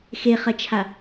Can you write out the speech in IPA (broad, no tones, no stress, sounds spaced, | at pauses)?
x e χ ɐ t͡ʃʰ a